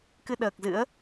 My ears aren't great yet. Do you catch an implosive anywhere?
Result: yes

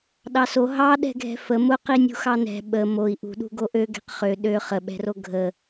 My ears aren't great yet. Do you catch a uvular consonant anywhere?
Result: yes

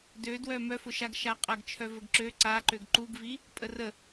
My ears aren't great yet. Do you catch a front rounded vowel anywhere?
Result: yes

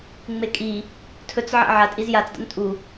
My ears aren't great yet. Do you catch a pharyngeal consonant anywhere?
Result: yes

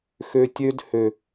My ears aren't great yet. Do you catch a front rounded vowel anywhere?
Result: yes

